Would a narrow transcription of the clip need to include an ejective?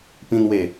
no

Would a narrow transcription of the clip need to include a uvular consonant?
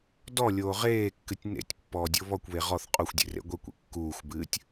yes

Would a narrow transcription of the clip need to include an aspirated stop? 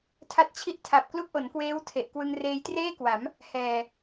yes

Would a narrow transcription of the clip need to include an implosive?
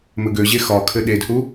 yes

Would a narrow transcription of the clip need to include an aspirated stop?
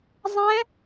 no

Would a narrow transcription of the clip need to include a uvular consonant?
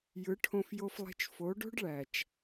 no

